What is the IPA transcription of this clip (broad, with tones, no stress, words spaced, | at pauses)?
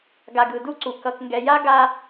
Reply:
ɡa˨ɡ ɯ˨du˦ǀu˨ kʌ˨kŋɡɛ˨ja˦ ɡa˦